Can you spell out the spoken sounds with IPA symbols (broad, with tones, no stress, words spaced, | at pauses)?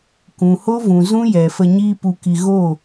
kũ˨ho˦vũ˨zũ˦ jɛ˨fə˧ ɲiː˦ pu˧ki˧ ɣo˦˨